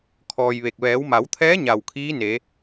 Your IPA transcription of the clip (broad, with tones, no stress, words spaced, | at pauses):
kʰɔː˧jʋe˧˩k̚ ʋɛː˩˧wma˩˧wt̪ʰɛː˧˥ ɲa˧˩wkʰiː˧˥ne˩˧